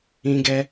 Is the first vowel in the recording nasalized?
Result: yes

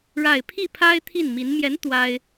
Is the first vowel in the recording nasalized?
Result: no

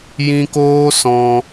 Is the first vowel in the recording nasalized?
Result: yes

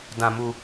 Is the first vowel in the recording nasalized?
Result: yes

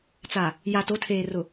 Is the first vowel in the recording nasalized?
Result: no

